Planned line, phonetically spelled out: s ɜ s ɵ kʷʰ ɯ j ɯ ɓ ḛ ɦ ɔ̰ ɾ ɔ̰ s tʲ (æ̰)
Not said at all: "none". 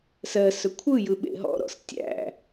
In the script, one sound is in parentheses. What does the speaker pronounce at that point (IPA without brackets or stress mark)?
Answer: æ̰